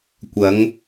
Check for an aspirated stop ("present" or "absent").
absent